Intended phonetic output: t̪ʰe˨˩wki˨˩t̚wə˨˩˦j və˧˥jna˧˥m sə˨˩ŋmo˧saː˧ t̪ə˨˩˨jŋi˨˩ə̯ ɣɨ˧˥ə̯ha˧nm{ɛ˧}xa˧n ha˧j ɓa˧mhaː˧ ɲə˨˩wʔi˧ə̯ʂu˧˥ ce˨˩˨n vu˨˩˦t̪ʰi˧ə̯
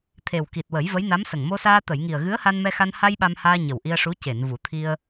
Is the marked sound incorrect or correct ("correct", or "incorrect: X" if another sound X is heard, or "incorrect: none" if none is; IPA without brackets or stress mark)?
correct